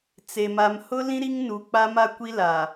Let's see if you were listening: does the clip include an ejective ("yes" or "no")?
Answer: no